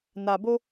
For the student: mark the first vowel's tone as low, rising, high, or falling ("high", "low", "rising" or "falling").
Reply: low